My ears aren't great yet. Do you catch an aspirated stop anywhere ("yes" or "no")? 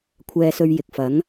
yes